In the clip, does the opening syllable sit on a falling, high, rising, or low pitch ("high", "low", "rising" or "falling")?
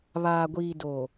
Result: low